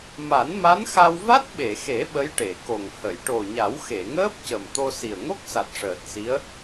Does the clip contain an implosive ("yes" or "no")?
yes